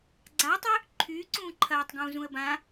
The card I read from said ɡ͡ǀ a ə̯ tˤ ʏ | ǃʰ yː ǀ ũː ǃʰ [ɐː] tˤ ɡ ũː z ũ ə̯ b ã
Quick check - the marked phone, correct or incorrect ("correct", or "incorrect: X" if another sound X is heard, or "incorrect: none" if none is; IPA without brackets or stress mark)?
correct